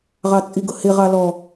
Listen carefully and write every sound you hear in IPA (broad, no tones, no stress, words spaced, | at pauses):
ʁɑt͡sʼiɡʊhɪ ʁɑlɔ